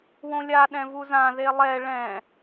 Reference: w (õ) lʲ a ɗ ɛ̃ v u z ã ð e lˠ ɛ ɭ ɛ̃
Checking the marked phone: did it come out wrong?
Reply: no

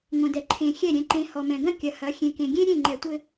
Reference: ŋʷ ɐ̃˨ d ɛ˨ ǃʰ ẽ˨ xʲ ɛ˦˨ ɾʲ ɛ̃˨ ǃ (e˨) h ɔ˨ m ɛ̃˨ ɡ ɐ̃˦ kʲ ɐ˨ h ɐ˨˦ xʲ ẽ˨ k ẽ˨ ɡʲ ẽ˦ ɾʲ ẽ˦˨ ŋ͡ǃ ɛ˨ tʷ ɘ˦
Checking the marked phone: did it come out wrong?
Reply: yes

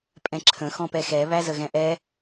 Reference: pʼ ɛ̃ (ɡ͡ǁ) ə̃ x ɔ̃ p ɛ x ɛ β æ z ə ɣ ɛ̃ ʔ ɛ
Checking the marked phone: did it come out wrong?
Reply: yes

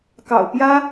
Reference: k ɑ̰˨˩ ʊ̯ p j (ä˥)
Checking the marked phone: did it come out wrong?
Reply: no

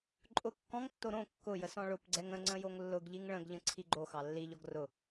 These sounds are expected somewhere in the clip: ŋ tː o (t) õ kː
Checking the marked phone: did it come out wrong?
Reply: yes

